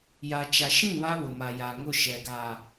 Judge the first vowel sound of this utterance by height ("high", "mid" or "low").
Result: low